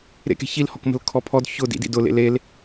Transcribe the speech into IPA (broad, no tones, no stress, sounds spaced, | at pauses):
ɾ ḛ k e̤ ç i l h ɔ k m ə̤ l kʰ ɔ pʰ ɔ d ç ʊ d ḭ d ḭ d ʊ l ḛ l e l